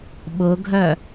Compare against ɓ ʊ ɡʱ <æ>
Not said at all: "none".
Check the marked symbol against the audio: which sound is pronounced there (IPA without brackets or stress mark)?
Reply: œ